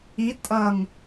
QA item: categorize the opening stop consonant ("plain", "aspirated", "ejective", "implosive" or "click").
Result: ejective